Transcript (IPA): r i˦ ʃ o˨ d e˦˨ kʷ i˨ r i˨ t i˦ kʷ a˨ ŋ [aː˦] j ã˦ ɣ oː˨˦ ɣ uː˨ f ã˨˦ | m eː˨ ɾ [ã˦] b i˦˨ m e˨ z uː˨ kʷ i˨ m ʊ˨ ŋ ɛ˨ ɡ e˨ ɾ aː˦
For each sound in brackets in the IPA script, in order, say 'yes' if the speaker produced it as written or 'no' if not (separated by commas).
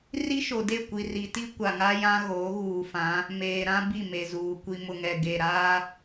no, yes